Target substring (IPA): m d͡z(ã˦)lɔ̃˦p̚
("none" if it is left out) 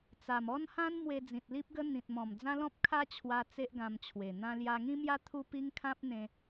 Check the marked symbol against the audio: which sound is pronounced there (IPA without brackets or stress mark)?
ã˦